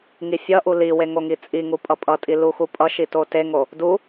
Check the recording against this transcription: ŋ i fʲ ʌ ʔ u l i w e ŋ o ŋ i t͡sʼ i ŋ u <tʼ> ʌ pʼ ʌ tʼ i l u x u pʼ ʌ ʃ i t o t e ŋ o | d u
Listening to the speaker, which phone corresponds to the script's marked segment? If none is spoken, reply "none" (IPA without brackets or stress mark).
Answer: pʼ